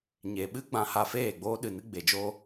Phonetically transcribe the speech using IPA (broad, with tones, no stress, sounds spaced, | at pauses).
ɲ e˨ ɓ ɨ˦ ɡ͡b ã˧ h a˧ f eː˦˨ ɡ͡b oː˦ ɗ ɨ˨ n ɨ˧ ɡ͡b e˨ d͡ʒ oː˦